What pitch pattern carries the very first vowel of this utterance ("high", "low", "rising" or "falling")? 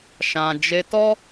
low